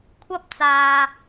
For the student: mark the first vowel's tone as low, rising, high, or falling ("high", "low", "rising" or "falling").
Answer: high